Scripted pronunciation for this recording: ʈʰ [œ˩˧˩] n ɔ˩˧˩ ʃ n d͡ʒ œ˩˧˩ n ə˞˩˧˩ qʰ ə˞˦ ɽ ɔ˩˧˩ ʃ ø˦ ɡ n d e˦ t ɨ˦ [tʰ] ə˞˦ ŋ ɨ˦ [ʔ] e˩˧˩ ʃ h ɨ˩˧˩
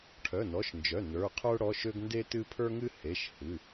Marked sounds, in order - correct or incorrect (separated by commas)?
correct, incorrect, incorrect